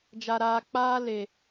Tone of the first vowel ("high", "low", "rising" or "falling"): low